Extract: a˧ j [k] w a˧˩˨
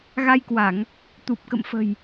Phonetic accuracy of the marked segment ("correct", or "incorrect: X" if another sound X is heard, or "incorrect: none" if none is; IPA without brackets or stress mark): correct